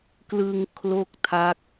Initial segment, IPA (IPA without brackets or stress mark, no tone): k